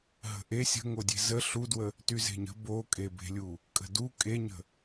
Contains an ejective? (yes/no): yes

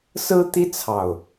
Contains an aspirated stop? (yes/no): yes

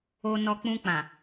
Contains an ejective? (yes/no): no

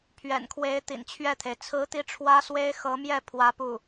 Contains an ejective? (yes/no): no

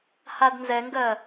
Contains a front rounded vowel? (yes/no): no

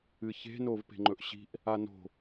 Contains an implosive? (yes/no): no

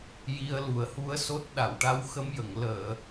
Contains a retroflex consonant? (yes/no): yes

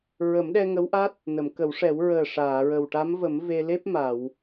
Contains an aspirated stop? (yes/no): no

